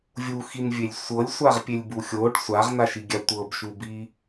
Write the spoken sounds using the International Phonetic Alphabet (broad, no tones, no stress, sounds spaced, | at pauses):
vʲ u x i n vʲ e lʲ sʷ ɤ lʲ sʷ a ʁ pʲ e lʲ b u xʲ o ɖ sʷ a ʁ n a ʃ i ɡʲ a tʷ ɤ b ʃ u b i